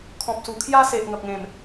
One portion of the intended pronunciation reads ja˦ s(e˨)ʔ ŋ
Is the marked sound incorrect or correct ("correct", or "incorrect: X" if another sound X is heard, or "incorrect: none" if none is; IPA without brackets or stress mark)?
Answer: correct